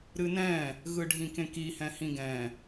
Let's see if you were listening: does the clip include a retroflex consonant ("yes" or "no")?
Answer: yes